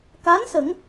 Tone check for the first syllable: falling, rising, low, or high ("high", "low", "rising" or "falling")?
rising